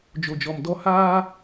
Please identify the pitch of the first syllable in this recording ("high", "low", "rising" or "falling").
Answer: low